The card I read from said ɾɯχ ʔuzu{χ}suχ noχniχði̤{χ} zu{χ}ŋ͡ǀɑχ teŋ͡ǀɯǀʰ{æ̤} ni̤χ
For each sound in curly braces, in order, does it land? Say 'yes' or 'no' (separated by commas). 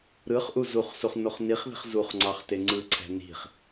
yes, yes, yes, yes